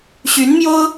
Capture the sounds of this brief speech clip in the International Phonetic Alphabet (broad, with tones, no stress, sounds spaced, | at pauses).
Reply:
ɕ y˧˥ n m j o˥ ʊ̯